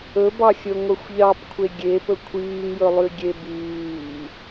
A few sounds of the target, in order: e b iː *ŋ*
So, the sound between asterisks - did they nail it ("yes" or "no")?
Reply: no